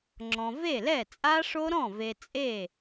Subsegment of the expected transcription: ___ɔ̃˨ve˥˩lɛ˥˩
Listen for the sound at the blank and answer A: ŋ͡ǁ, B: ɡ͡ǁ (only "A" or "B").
A